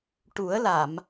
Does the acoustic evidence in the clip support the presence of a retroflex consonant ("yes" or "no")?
yes